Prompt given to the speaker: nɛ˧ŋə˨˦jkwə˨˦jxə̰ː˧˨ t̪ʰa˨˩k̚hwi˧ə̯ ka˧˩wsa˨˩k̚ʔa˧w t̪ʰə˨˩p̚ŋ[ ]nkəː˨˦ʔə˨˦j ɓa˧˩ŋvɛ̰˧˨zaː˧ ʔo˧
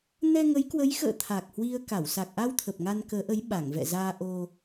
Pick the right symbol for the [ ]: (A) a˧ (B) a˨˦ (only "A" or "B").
A